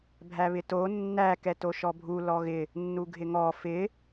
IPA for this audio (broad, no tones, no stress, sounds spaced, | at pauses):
bʱ æ β ɪ t o nː æ k ɛ t o ʃ ɔ bʱ u l ɔ ɣ ɪ | nː u ɡʱ ɪ ŋ ɔ f ɪ